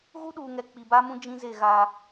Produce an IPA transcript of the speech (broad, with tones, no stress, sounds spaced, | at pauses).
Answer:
ɣ u˦ ɗ uː˨ ŋ ɛ˨ k͡p i˨ b a˦ m ũ˦ d͡ʒ ĩ˦ z e˦˨ ɣ aː˦